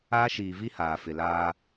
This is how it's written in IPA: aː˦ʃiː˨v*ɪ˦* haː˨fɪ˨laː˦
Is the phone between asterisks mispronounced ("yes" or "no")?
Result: yes